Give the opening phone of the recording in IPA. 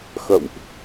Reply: x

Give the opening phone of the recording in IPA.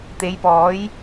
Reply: t̪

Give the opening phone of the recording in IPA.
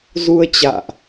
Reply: z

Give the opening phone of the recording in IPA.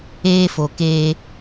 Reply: eː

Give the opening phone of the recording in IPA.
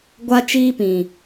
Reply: ɡʷ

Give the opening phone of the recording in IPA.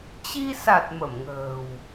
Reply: t͡ɕ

